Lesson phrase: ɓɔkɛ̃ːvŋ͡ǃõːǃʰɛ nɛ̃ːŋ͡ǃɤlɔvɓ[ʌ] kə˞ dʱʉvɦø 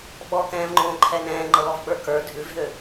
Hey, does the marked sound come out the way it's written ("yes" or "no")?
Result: no